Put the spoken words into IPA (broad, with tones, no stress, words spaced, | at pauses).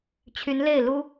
t͡ɕʰy˧˥nle˥˩ɪ̯lu˥